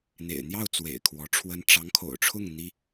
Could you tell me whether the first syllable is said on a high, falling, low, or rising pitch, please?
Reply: low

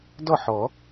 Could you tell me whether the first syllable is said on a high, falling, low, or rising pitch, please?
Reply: falling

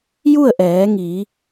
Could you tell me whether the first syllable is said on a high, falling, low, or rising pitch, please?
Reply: falling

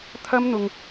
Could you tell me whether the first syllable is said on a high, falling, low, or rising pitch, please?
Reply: high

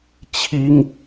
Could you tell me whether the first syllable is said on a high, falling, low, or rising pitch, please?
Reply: high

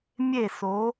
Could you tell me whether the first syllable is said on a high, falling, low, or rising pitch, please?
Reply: falling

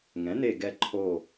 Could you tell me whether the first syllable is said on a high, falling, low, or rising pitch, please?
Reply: rising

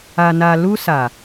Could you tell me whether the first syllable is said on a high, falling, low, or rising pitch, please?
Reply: low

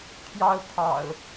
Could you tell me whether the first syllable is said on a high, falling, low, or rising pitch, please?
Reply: high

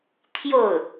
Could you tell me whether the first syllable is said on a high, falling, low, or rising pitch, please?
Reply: falling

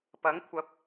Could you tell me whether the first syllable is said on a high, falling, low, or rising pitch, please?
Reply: rising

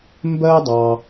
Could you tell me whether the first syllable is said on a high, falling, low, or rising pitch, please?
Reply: high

